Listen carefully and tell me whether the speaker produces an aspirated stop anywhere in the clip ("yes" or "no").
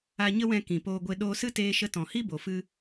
no